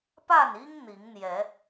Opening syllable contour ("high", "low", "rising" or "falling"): falling